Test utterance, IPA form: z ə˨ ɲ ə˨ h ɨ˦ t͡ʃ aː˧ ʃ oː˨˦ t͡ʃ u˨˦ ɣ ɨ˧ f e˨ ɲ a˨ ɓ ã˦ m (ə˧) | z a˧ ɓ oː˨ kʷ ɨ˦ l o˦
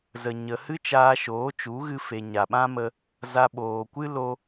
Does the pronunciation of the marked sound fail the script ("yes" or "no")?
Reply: no